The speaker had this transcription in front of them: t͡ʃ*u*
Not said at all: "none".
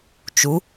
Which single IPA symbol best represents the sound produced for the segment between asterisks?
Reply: u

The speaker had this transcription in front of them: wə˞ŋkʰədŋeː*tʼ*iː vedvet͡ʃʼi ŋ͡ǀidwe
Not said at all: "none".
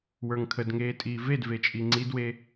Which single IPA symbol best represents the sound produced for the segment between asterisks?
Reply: tʼ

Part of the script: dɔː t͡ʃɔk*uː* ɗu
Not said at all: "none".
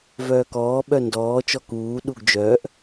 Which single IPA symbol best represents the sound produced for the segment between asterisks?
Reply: uː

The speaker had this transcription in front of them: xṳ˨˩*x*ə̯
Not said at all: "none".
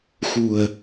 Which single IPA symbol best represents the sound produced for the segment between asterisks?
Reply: none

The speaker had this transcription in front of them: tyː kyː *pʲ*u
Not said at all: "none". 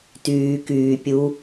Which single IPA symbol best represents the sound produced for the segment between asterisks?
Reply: pʲ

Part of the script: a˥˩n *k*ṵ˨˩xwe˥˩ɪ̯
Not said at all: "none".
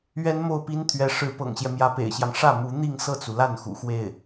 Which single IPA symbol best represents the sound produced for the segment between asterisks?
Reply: x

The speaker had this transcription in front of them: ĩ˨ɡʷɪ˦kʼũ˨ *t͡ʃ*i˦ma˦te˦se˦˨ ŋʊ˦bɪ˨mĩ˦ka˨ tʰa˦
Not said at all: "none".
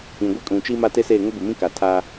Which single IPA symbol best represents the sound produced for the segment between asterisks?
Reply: t͡ʃ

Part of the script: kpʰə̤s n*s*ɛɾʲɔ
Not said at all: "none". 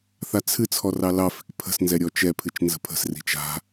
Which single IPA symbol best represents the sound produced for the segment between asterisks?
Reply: z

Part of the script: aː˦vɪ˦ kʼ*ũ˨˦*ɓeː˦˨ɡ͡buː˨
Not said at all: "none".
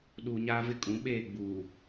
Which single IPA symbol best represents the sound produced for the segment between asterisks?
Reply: ũ˨˦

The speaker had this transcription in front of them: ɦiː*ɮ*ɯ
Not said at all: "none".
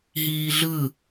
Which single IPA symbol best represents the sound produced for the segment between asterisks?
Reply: ɮ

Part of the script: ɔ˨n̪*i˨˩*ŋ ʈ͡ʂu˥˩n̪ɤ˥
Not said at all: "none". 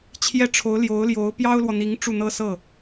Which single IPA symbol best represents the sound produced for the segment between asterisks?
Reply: i˧˥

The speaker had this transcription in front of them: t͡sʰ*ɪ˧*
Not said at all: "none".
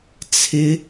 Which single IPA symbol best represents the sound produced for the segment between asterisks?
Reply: ɪ˧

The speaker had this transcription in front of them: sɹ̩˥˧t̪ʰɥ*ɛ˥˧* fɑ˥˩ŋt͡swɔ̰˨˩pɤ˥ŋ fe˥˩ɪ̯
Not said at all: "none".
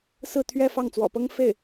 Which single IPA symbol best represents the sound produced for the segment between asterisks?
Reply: ɛ˥˧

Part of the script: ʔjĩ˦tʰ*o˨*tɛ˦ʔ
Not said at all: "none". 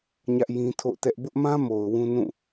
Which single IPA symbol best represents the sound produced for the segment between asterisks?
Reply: o̰˦˨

